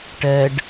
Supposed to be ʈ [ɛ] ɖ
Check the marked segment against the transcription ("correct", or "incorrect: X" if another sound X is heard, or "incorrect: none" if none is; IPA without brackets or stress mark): correct